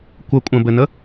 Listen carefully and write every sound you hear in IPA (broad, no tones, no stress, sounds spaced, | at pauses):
kʷ ə kʷʼ ə̃ b ɘ n ə